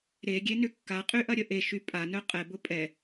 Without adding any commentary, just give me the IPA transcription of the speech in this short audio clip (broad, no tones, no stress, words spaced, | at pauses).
ɾeɡʲenʏ kːaqʼyʔɐɾʲə ʔeʃy pʼanœ qʼɛbʊ pʼɛ